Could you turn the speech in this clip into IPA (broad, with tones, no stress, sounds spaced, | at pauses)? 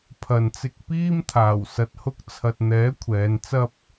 pʰ ɐ˨ n t͡s ɪ˧ k̚ p iː˥ m t̪ʰ aː˨˩ w s ɐ˨ t̚ h ʊ˥ k̚ t͡sʰ ɐ˧ t̚ n̪ ɛː˨˥ kʷʰ ɛː˨˧ n t͡s ɐ˥ p̚